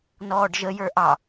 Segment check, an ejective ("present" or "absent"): absent